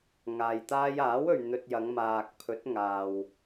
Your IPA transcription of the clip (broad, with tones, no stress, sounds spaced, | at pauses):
ŋ aː˨ j t̪ aː˧ j aː˨˥ w ɵ˨ ɥ n̪ ɵ˧ t̚ j ɐ˨˧ ŋ m aː˨ k̚ pʰ ɵ˨˥ t̚ ŋ aː˨ w